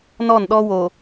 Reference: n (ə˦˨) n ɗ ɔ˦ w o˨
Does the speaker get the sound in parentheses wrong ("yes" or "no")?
yes